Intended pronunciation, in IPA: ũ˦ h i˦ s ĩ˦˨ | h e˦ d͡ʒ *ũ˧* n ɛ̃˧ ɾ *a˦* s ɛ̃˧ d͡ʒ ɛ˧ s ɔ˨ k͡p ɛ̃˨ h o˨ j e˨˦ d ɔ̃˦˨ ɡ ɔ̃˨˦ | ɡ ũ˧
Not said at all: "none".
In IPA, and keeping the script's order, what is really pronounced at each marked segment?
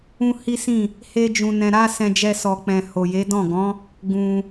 ũ˧, a˦

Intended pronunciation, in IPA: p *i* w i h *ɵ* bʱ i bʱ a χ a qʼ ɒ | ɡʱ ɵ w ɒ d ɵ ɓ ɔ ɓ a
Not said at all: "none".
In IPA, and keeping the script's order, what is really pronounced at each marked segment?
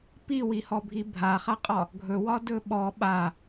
i, ɔ

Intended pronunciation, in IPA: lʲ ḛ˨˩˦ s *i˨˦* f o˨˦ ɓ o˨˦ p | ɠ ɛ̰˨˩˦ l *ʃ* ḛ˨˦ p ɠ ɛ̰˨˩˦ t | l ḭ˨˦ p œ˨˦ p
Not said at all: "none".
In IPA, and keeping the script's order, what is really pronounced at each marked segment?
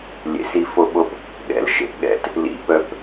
i˨˦, ʃ

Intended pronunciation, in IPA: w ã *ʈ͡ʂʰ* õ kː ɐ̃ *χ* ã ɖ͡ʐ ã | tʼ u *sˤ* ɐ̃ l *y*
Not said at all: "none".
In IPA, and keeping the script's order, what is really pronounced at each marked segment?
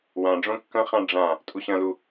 ɖ͡ʐ, χ, ɕ, u

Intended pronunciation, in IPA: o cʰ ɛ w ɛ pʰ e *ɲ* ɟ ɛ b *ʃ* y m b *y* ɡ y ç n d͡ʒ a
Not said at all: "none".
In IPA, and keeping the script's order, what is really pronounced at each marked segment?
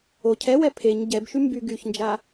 ɲ, ʃ, y

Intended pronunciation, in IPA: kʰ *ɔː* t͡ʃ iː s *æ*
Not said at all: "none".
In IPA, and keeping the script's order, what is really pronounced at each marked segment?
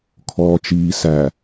ɔː, æ

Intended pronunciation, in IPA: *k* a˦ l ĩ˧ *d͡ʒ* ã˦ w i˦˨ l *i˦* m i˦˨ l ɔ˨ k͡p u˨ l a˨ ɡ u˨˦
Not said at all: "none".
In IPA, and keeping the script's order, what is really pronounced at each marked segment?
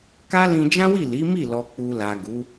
k, d͡ʒ, i˨˦

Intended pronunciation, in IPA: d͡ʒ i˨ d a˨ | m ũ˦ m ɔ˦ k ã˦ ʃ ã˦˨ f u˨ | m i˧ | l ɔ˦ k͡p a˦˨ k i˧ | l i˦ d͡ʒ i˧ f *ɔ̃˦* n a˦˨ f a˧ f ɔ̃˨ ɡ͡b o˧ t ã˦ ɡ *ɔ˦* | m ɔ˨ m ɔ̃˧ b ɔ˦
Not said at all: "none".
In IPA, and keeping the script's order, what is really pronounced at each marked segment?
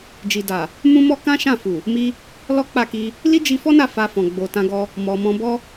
ɔ˦, ɔ˦

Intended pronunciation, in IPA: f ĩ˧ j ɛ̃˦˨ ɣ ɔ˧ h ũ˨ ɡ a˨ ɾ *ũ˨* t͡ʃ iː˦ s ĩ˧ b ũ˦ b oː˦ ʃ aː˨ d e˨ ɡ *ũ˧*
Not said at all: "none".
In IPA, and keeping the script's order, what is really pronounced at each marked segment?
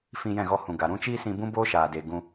ũ˦, ũ˧

